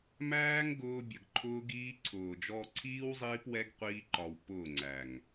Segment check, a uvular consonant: present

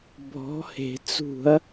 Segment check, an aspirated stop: absent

